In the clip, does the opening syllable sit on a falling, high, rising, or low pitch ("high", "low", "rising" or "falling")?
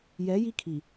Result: rising